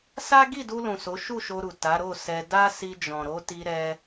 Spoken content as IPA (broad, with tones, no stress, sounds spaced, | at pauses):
s a˦ ɡ i˦˨ d u˧ l ũ˨ s o˨˦ ʃ u˦˨ ʃ o˧ ɾ u˨ t a˨˦ ɾ o˦˨ s ɛ˧ d a˦ s i˧ d͡ʒ ɔ̃˨ ɾ o˨˦ t i˧ ɾ ɛ˧